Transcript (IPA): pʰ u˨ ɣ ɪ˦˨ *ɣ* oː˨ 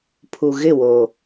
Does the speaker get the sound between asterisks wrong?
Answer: yes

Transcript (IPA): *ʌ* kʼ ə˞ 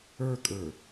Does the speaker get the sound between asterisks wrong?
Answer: yes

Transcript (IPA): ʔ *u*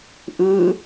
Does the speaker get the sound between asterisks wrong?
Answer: yes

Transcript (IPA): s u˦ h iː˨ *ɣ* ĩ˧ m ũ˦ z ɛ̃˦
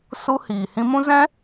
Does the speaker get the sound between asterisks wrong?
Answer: yes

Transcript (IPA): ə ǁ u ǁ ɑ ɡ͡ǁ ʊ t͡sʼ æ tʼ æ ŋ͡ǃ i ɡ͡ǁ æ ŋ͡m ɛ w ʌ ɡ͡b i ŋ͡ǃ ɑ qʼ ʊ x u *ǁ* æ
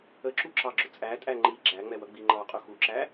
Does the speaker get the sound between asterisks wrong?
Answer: no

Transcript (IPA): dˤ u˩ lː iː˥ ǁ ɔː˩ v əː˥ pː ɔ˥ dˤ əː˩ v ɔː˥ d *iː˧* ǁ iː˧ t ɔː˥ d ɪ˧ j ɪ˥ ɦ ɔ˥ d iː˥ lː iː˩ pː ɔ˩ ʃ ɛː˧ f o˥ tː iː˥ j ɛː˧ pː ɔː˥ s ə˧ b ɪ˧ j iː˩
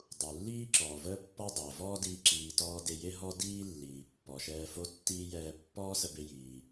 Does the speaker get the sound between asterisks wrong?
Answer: yes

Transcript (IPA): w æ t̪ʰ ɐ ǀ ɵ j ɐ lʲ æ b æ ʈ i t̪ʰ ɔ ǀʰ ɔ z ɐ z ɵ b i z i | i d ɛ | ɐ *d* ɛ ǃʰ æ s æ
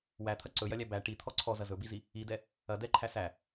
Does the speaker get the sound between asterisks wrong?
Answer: no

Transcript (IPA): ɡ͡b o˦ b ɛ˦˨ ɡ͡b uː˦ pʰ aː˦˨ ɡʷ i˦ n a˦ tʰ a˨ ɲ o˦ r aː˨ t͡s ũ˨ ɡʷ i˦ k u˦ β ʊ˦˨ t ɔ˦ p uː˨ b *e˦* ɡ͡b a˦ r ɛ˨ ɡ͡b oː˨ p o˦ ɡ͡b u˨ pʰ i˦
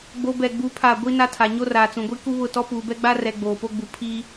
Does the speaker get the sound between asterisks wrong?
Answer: yes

